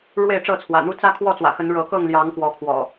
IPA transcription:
ɻwe˥˨ɪ̯ʈ͡ʂɤ˥˨t͡sʰwä̰˨˩n̪u˦ t͡sä˦kʰwɔ˥˨t͡swä̰˨˩xə˨˦n ɻɤ˨˦kɤ˥˨ŋljɑ˨˦ŋ kwɔ˨˦kʰwɔ̰˨˩

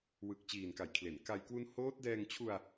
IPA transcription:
wɯ˨˩k̚ t͡ɕiː˨˩nka˩˦jkʰle˩˦n ka˧j kwu˦˥n hoː˦˥t̚dɛː˧ŋt͡ɕʰu˧a̯

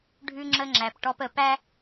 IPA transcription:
ɖʱʉ˦ŋ͡ǁə˦ŋ͡ǁæ˨p ʈɔ˦p ə˨pæ˦

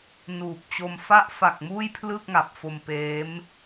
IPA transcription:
nuː˨˩p̚t͡ɕo˧m fa˦˥ʔfa˨˩k̚ muː˥˩jpʰlɯ˥˩k̚ŋa˨˩p̚fo˧m peː˦˥m

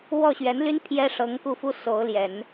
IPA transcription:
wɔ˥˩ɕɥɛ˧˥nly˥n pʰjɛ˥ ʂɤ˧˥ŋku˥˩fu˥ so˧˥ʊ̯ljɛ˨˩˦n

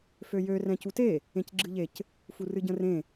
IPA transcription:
føjø rɛ̃cute | ẽcɡ͡ǁɨʎec | furɨɟə̃rẽ

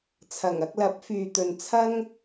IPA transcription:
t͡sʰɐ˨˩ŋɐ˧k̚lɐ˨˥p̚ fyː˨t̪ɵ˨nt͡sʰɐ˥ŋ

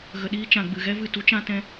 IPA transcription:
ɣə˧ɗiː˦ t͡ʃã˧ɡ͡bɨ˧ɣɛ˦vɨ˦˨ tu˦t͡ʃã˦tɛ̃˦

